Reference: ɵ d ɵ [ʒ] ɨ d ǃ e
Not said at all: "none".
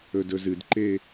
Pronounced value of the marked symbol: z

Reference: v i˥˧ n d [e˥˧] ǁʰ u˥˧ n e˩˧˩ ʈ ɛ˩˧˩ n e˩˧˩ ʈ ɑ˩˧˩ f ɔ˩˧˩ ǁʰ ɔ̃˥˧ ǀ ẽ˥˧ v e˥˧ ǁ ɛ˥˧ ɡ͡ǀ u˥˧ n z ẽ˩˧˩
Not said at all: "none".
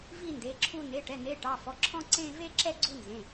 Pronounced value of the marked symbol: e˩˧˩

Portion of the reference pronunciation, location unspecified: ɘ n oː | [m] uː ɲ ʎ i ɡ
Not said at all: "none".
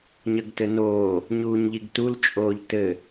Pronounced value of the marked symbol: ɲ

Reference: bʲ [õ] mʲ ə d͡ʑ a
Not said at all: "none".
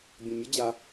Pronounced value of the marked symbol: õ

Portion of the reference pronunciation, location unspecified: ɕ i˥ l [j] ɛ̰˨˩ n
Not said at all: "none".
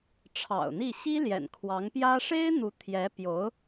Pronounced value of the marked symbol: j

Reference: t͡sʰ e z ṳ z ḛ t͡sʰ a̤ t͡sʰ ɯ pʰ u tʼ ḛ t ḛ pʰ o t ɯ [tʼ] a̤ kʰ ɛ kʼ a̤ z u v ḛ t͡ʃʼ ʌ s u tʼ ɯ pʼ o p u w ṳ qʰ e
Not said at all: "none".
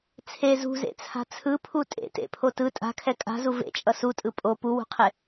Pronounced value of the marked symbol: tʼ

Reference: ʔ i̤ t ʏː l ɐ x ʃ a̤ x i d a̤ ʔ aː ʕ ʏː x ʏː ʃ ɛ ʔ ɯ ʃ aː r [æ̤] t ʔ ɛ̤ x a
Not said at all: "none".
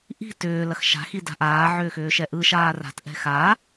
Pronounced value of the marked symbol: a̤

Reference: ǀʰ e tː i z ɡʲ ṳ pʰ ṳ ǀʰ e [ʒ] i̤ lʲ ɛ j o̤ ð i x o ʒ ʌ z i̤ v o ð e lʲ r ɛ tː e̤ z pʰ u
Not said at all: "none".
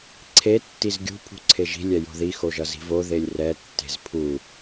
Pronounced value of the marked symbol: ʒ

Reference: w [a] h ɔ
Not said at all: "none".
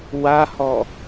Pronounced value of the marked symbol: a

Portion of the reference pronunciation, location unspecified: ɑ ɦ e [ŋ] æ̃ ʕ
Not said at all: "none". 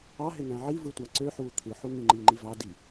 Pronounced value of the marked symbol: ŋ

